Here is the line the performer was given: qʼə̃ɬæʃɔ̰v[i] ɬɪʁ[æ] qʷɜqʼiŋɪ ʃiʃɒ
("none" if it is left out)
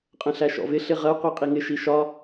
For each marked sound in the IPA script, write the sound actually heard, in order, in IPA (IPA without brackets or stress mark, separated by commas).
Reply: ɪ, ɜ